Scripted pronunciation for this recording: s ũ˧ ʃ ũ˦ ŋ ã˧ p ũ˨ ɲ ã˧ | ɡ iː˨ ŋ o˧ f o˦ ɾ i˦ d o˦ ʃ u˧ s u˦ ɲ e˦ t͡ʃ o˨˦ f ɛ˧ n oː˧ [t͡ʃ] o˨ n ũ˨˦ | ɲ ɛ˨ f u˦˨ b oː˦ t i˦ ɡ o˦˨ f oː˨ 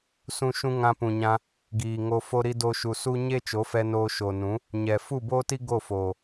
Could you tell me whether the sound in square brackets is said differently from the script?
yes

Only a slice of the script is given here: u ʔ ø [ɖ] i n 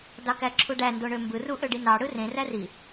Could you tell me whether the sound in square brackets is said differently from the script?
no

